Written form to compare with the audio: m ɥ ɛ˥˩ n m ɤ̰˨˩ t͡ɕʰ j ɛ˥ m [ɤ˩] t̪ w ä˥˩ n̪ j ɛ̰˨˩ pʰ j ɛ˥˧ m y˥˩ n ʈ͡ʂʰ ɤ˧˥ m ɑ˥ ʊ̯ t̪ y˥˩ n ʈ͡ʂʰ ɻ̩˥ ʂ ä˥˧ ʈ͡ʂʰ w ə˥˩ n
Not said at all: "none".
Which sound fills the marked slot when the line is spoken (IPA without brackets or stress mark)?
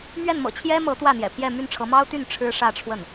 ɤ˧˥